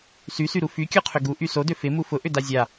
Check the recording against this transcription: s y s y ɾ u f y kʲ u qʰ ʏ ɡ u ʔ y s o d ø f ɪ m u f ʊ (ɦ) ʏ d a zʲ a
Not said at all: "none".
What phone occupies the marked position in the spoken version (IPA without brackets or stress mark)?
ʔ